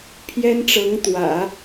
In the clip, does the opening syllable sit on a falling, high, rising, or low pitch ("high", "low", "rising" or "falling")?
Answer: high